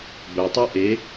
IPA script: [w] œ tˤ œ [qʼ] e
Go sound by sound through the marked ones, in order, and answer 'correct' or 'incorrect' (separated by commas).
incorrect, incorrect